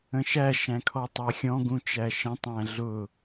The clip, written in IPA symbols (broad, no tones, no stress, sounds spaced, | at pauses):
ə̃ ʃ æ ʃ æ̃ kʰ ɔ tˤ ɜ xʲ ɔ̃ ɡ ũ t͡ʃ æ ʃ ə̃ tˤ æ̃ ɮ ʊ